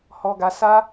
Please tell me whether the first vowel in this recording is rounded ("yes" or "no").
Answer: yes